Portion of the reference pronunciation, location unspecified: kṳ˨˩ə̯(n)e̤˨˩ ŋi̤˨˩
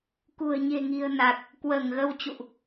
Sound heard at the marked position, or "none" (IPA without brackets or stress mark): ɲ